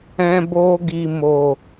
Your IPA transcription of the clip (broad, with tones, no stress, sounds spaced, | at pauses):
ɛ̃˧ b o˧ ɡ i˨ m o˨